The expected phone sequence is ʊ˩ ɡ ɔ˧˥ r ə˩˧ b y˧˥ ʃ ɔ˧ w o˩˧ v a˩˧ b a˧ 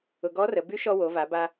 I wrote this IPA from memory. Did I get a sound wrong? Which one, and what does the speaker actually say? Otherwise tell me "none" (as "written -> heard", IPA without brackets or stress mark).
none